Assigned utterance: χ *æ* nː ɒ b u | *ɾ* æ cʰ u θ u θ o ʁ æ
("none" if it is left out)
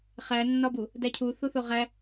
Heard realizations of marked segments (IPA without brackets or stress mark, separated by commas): æ, d